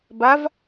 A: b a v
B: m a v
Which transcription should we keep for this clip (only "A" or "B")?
A